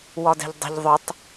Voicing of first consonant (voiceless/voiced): voiced